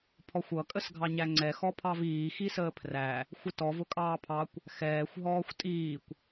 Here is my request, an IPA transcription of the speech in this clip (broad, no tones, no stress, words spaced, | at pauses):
pʰɔxʷʌ kʼəsɡʱɑɲæŋ͡ǀɛ xɔpʰɑviː xisəːpʰræ | xʷɪtɔv ʊkʼɑːpʰɑkʷ | xɛːxʷ ɦɔːxʷtʼiːkʷ